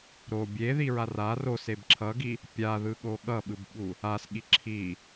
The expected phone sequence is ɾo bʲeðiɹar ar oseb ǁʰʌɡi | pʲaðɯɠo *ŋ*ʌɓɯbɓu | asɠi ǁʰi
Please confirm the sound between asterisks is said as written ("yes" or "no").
no